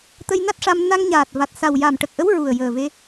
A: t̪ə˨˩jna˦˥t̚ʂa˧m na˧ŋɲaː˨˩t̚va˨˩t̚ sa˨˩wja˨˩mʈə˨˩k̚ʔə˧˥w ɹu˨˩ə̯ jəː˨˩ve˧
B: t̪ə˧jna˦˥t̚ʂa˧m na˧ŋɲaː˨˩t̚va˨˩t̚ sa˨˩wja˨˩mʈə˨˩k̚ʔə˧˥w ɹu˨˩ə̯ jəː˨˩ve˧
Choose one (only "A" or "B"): B